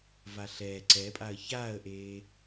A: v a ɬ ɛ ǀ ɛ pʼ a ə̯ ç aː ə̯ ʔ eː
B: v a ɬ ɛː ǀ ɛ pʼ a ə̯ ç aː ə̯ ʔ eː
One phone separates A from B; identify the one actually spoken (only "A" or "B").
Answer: B